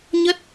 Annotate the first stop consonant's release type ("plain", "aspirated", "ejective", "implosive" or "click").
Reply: plain